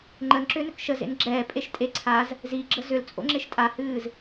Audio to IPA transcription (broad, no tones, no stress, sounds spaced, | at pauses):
ŋ͡ǃ ə n ǁ ʏː n ʏ k ʃ ə z ḛ n ɡ͡ǁ ɛː pʼ e ʃ tʼ e ǀʰ a z | z i ɡ͡ǁ ə z ʏ l t͡sʼ o̰ ŋ͡ǁ e ʃ tʼ a h ɨː z